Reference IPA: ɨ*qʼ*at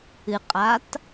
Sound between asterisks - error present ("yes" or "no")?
no